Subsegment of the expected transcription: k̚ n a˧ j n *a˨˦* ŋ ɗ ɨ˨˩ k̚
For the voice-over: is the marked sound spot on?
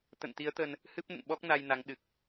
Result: yes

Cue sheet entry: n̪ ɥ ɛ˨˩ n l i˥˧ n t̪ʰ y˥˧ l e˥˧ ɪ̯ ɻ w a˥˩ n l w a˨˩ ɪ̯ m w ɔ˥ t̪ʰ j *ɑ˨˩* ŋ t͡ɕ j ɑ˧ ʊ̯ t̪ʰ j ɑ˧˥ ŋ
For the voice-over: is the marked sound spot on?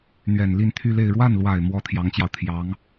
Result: no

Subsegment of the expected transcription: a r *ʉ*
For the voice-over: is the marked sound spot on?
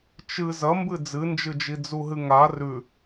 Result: yes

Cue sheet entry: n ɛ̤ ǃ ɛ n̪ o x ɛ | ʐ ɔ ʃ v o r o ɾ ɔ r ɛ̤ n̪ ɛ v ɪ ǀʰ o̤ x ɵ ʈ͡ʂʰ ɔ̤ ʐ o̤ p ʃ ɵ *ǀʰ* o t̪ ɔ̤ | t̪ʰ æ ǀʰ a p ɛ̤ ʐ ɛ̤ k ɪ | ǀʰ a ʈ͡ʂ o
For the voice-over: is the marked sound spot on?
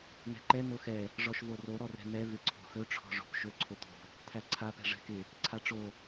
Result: yes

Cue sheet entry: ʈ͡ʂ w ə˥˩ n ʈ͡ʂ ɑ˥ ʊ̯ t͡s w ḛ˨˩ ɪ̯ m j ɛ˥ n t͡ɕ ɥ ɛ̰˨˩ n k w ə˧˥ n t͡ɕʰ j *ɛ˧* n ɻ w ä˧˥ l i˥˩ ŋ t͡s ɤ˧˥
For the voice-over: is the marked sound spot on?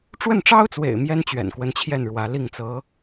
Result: no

